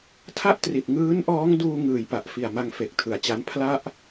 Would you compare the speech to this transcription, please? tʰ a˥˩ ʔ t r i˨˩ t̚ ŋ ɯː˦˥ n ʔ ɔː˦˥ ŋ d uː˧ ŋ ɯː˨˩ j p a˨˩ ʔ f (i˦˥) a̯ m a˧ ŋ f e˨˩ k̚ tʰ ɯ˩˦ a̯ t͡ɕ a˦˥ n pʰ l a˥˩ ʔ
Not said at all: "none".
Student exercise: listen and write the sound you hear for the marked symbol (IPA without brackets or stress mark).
i˨˩